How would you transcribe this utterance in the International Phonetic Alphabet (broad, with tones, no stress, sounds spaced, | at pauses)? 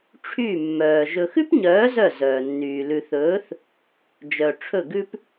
ʈ͡ʂʰ y˦˨ mː œː˨ ʒ ɵ˨ x ʉ˦ p ɲ œː˨˦ z œ˦˨ z œː˨ nː yː˨ l ʉ˨ θ ɵː˨˦ θ | d͡ʒ œ˨ ʈ͡ʂʰ ɵ˦˨ ɡ ʉ˦ p